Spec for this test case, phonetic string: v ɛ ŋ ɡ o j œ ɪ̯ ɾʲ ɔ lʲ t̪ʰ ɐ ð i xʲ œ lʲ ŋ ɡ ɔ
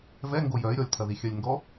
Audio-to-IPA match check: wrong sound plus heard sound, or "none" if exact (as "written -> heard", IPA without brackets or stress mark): none